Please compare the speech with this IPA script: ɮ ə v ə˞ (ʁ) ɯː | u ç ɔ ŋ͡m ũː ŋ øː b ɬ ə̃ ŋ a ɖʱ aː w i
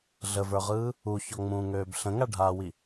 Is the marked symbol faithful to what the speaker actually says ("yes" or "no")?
yes